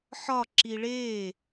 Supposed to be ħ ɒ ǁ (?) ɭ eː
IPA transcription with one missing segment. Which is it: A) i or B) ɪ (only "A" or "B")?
A